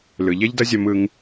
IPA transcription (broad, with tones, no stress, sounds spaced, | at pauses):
l ɯ˨ ʎ ɛ˦ ʎ d ʌ˦ zʲ ʌ˧ m ɯ˧ ŋ